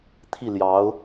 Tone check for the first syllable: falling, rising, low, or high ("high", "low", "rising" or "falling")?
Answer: falling